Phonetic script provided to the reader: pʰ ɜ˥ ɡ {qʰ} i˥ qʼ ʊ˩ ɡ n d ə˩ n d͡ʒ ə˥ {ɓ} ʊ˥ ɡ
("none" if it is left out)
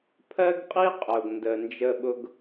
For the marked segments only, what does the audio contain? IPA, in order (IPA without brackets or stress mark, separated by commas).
qʼ, ɓ